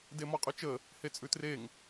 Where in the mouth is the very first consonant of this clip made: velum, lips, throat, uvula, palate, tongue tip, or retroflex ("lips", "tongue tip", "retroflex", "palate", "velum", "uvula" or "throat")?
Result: tongue tip